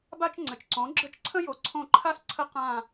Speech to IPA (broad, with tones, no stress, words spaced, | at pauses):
ba˥t͡ʃŋ͡ǀɘ˩˧t͡ʃǀõ˩˥ ɡ͡ǁə˦˨t͡ʃǀʰə̃˥ jo˩˥ ǀʰõ˦˨ǃʰa˥s ǀʰə˥ qã˦˨